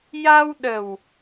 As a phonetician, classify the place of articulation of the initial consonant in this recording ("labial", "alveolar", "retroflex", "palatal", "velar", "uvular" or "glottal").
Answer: palatal